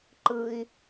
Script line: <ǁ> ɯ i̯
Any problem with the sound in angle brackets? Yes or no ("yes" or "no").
yes